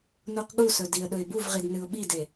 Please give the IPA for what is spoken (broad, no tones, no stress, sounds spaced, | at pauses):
n u q ɠ u s ɵ d i ə̯ ɗ ɵ ɪ̯ b u v ʁ i d n ɨ ʊ̯ ɓ i d e